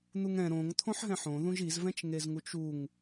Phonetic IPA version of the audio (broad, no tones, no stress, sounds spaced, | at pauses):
n̪ u ŋ ɛ̃ ɾ õ ŋ t̪ʰ õ ħ ɦ ɛ̃ ħ õ ð ũ ʒ i z v ɛ̃ t͡ʃ ŋ e z ŋ u t͡ʃ u ŋ